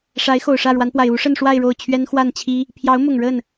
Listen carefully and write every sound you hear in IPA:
ʂ a˧˥ ɪ̯ x o˨˩ ʊ̯ ʂ ä˥˩ ɻ w a˧˥ n p w a˨˩ ɪ̯ u˧˥ ʂ ə˥˧ n ʂ w a˥˧ ɪ̯ ɻ o˥˩ ʊ̯ t͡ɕʰ ɥ ɛ˥ n x w a˥˩ n t͡ɕʰ i˥ | pʰ j ɑ˧˥ ʊ̯ m ʊ˨˩ ŋ ɻ ə˥˩ n

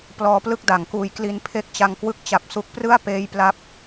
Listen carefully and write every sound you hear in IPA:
p l ɔː˦˥ p l ɯ˥˩ k̚ d a˩˦ ŋ k uː˧ j k l i˧ n pʰ e˥˩ k̚ t͡ɕ a˧ ŋ k w ɯ˦˥ k̚ t͡ɕ a˨˩ p̚ s u˦˥ k̚ p r ɯ˥˩ a̯ p eː˦˥ j p l a˥˩ p̚

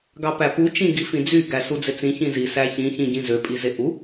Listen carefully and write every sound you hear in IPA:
ɡ ɑ p æ p u t͡ʃ ĩ ɡ i f ĩ d͡z y ɡ æ s u d͡z e t͡s ĩ ç ĩ z i s æ ç ĩ ç ĩ ɟ ĩ z ø pʼ i z e ʔ u

